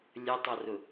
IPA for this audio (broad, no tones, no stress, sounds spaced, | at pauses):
lʲ ə tˤ ʌ r ʊ